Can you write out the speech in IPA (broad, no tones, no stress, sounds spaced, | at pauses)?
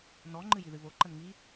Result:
n ɔ ŋ͡ǃ ɨ j i ð ɨ β o ǃ ə n ŋ i